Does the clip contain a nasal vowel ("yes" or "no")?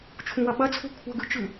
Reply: yes